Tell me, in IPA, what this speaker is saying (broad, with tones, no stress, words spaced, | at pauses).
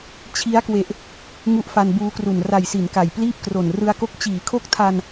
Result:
t͡ɕʰi˦˥a̯kwe˨˩ʔ | ŋu˦˥ʔfa˧nbuː˧kru˨˩n ra˨˩jsi˩˦n ka˨˩jpliː˥˩p̚kro˨˩n rɯ˧a̯ko˦˥k̚ t͡ɕiː˩˦kʰo˦˥k̚tʰa˧n